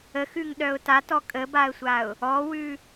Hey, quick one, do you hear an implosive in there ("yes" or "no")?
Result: yes